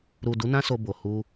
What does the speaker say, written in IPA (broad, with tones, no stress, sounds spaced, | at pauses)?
ɾ u˨ d u˨˦ n ã˦ s o˧ b o˨ h u˧